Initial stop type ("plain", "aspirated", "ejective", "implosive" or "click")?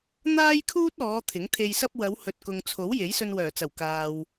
aspirated